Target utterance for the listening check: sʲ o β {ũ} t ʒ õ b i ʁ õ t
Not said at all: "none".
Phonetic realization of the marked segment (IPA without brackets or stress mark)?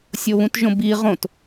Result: ũ